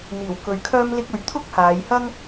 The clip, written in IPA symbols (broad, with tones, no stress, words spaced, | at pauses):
n̪iː˨˩w kɵ˨ɥ kʰœː˥mlɪ˥k̚ɵ˧ɥ t̪ʰʊ˥k̚haː˨˧jhɐ˥ŋ